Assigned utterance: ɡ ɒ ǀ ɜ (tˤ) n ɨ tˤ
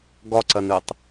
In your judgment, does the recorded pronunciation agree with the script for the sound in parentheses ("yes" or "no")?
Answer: no